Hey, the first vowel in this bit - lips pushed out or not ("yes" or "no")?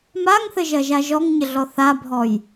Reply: no